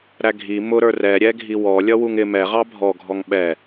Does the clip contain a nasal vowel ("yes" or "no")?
no